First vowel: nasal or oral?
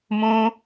nasal